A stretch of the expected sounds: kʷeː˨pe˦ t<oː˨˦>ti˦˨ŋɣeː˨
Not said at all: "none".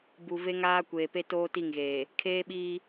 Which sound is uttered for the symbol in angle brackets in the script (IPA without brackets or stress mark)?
oː˦